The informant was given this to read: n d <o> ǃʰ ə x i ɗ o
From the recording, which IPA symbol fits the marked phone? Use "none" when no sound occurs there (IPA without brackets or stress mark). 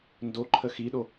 o